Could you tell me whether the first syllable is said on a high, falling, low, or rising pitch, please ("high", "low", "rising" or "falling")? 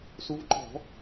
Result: rising